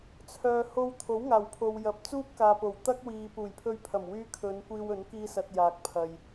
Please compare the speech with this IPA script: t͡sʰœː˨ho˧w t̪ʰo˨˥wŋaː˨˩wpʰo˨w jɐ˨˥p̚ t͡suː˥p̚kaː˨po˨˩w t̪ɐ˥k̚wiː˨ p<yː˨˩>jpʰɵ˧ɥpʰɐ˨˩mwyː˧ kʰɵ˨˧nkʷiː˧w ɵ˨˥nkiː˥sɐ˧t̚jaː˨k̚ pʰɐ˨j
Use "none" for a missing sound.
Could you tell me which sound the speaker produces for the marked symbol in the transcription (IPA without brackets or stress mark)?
uː˨˩